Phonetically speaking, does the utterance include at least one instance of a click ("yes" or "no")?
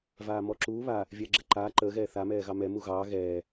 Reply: yes